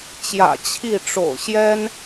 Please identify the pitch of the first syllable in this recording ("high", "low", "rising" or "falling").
low